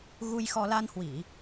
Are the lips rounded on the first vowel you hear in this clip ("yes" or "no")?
yes